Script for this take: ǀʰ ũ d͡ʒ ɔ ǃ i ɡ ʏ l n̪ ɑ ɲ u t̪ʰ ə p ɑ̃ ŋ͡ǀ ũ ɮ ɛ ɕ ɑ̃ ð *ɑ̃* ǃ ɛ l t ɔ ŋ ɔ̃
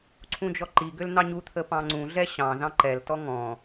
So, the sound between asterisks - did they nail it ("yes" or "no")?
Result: yes